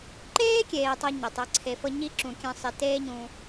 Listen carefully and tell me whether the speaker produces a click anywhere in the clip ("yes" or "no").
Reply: yes